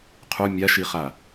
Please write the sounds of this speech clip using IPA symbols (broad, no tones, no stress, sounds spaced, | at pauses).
qʰ u mʲ a ʃ i χ a